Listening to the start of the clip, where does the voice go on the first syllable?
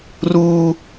high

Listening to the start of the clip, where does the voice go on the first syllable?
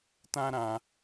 high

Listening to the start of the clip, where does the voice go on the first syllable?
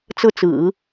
falling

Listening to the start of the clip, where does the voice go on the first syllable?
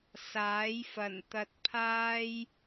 rising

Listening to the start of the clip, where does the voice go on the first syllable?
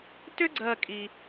high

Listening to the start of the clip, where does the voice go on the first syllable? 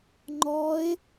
rising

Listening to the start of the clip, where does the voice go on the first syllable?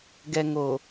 low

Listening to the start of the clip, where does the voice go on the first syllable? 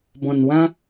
low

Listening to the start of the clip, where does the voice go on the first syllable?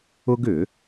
high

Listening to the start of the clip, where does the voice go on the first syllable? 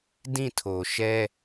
falling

